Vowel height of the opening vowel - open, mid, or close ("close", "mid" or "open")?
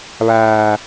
open